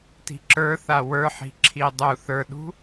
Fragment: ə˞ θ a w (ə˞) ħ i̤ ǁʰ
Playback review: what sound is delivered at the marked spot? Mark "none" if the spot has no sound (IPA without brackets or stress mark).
ə˞